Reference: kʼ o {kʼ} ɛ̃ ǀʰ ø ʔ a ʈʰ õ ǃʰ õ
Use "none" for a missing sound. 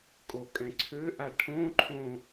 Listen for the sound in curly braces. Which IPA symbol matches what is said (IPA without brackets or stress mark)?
kʼ